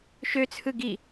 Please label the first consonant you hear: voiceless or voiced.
voiceless